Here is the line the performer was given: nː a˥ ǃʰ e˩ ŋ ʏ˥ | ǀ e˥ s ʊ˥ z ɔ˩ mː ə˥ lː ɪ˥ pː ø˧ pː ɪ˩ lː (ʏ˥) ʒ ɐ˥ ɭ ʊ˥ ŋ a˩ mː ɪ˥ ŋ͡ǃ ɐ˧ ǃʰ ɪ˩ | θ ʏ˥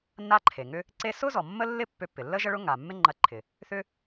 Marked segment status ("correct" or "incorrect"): incorrect